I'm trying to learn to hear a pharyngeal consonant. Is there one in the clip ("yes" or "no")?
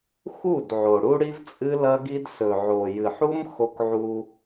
yes